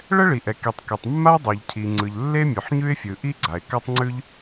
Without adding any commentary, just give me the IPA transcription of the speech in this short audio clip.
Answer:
ɭ ɛ˥ ɭ i˩ ʔ ɛ˩ k i˩ tˤ k e˩ tˤ mː a˥ ə̯ dˤ o˩ ʎ cʰ i˩ ŋ͡ǀ ɯ˩ ʎ lː e˥ mʲ ʉ˩ ħ ɲ ʉ˥ ɪ̯ fʲ ɯ˩ ʔ i˥ ɡ͡ǀ a˩ ɪ̯ k a˥ tˤ ŋ͡ǀ ʉ˥ ʎ

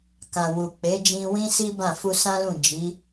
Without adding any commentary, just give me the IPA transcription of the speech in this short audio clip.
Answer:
k ã˨ w u˨ k͡p e˨˦ d͡ʒ ĩ˧ w ĩ˦ s i˦ b ã˦˨ f u˧ s ã˦ l ũ˦˨ d͡ʒ i˨˦

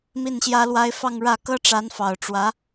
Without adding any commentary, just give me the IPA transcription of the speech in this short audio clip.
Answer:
m i˥˩ n ɕ j ä˥ l w a˥ ɪ̯ f ɑ˥˧ ŋ ɻ ä˥˩ k ɤ˥ ʈ͡ʂ a˧˥ n f ɑ˨˩ ʊ̯ ʈ͡ʂ w ä˧˥

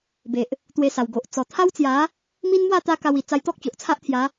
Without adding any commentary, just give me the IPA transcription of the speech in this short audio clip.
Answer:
b e˨ ʔ | t̪ w e˧ s a˨˩ w ɡ o˨ ʔ t͡s ɔ˨˩ t̪ʰ a˦ w t͡s j a˨˦ | m i˦ n m w a˥˧ t̪ a˦ k a˧ w i˨˩ t͡s a˧ j t̪ ɔ˦ k̚ t͡ɕ o˨ ʔ t͡sʰ a˦ ʔ t̪ʰ j a˨˦

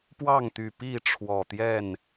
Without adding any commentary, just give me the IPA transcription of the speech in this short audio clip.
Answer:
p w ɑ˥˨ ŋ t̪ y˨˩ p i˥˨ ʈ͡ʂʰ w ɔ˨˩ t̪ j ɛ˥˨ n

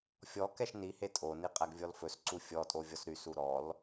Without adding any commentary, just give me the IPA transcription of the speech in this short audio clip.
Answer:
fʲ ɔ k ɛ ʃ n i h e tʼ o n i qʼ æ ɡ vʲ ɔ l f ɵ s ǀ u fʲ ɔ tʼ o vʲ ɔ s ɾ y s u ɾ ɔ l

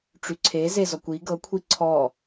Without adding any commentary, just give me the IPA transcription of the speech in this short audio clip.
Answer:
ʈ͡ʂ y ǀʰ e z e z ɔ kʷ i ɡ ɤ kʷʰ i ǀʰ ɔ

